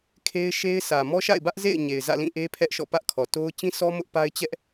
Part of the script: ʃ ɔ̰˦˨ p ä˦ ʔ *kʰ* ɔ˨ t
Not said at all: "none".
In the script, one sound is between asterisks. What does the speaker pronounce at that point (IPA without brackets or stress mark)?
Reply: kʰ